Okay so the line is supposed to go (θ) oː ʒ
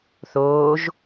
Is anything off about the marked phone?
no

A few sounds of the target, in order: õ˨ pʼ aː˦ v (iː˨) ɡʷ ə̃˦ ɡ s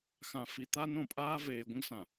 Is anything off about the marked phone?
yes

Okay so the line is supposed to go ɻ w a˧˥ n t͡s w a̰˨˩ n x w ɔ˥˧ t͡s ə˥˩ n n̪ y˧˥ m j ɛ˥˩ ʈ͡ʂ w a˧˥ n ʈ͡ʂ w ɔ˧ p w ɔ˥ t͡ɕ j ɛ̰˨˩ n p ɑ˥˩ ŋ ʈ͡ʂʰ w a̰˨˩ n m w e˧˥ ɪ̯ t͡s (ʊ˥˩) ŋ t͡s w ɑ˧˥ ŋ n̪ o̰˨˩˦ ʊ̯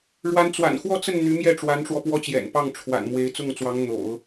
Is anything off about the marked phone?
no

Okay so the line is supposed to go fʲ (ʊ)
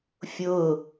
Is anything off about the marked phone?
no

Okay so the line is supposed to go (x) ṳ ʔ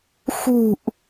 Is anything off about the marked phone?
no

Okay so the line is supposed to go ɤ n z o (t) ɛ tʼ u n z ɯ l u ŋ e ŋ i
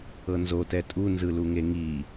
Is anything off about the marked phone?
no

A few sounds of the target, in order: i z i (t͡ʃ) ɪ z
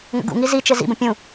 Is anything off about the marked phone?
no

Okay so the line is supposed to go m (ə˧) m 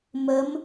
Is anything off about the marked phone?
yes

